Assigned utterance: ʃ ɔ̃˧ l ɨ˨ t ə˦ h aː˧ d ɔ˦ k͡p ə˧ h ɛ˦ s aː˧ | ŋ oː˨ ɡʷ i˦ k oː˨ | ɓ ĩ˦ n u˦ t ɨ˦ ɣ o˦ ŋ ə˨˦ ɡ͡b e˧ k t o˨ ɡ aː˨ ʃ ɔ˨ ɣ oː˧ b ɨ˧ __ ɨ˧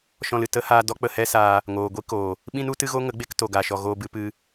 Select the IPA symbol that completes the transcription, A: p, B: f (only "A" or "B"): A